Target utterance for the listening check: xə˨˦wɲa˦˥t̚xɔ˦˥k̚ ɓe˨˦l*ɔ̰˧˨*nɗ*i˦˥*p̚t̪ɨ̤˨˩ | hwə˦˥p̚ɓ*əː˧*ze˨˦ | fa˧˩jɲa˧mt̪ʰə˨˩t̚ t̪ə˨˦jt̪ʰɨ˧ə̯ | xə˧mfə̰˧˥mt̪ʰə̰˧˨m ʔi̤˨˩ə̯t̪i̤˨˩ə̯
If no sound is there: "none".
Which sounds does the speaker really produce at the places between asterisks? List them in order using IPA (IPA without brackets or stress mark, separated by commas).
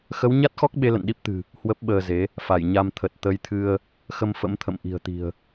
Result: ə̰˧˨, i˦˥, əː˧